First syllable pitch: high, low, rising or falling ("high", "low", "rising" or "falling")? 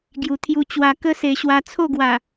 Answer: low